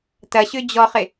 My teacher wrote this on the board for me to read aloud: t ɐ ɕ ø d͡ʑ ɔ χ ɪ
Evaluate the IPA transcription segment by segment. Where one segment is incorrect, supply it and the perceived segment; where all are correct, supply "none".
none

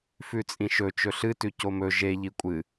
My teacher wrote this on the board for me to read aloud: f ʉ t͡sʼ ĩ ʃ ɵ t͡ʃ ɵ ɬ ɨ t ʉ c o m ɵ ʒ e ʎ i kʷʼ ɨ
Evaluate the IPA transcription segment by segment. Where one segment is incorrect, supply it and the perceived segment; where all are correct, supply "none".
none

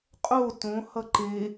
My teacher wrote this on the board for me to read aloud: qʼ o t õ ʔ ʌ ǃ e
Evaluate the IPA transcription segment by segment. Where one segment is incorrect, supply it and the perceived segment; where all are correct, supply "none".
ʔ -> h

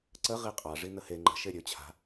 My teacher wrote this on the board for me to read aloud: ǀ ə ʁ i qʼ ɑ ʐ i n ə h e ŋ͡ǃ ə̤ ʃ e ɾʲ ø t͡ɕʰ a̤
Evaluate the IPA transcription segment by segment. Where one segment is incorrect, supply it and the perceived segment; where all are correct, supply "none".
none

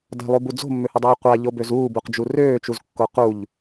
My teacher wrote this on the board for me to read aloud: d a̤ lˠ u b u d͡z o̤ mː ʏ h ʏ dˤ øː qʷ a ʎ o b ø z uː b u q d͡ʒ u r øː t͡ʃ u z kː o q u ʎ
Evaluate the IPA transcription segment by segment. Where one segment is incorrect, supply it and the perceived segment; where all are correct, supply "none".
none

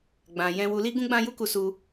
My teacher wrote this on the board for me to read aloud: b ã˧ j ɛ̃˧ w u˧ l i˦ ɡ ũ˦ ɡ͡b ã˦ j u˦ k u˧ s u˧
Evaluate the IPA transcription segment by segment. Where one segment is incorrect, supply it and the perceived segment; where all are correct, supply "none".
b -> ɡ͡b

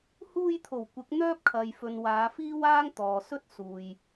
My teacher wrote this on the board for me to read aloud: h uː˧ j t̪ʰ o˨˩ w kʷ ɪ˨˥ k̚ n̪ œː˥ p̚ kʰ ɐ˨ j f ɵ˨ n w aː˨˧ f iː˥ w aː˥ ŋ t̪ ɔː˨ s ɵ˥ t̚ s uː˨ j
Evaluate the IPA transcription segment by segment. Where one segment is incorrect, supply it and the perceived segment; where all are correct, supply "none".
none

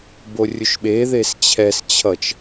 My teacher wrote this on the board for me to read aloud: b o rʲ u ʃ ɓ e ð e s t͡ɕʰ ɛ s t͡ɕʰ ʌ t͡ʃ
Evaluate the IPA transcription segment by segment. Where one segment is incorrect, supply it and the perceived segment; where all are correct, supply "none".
none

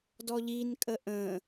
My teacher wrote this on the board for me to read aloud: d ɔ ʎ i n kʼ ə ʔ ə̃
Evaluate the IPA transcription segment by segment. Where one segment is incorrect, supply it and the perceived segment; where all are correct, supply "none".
none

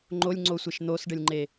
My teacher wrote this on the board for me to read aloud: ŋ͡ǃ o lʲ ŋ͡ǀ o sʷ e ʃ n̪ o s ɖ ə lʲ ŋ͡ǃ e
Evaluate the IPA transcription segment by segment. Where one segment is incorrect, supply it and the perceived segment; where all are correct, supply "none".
none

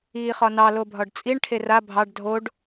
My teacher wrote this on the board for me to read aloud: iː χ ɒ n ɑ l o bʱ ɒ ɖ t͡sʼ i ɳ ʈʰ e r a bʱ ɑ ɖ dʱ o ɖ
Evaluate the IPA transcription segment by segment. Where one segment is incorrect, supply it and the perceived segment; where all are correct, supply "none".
none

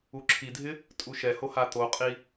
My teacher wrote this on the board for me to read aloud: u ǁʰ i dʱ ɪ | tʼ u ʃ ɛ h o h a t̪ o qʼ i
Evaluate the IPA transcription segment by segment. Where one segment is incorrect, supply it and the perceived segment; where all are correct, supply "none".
none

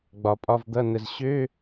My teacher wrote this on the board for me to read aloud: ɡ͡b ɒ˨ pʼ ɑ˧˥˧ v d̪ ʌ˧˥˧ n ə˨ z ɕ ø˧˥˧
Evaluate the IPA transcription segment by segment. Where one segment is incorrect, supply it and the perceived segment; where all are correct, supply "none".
ɑ˧˥˧ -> ɒ˧˥˧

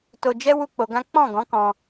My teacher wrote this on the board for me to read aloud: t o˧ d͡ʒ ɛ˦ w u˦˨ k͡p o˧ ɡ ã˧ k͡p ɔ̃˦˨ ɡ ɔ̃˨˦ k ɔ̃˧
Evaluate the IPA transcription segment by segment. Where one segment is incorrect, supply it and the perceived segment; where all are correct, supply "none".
ã˧ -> ã˦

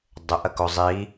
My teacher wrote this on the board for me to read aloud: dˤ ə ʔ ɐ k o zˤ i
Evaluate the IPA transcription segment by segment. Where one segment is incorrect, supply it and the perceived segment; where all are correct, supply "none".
none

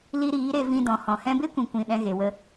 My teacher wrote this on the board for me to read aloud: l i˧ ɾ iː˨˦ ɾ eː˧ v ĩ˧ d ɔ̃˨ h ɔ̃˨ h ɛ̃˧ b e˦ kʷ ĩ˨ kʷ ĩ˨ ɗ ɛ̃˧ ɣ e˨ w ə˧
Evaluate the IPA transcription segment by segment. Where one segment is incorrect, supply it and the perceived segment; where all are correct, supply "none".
eː˧ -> e˧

